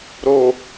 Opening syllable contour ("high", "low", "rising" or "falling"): low